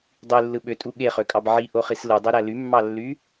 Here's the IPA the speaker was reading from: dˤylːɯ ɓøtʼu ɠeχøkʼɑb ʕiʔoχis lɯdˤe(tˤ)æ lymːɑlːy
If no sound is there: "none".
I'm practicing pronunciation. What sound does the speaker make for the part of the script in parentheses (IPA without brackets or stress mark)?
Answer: ɾ